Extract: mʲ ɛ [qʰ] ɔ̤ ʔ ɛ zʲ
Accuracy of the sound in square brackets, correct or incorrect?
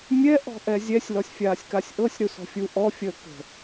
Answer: incorrect